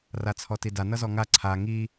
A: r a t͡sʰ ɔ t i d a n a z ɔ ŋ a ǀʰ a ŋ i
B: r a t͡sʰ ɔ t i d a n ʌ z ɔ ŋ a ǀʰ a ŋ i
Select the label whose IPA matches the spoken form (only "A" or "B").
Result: B